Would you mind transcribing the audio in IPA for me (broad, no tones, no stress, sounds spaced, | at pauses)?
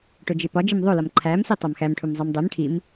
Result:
ʈ o d͡ʒ e p ɒ d͡ʒ i m ðˤ o l ɒ m ǃʰ æ m s i tˤ æ m x æ m ʈʰ u m zˤ i m dˤ e m ʈʰ i m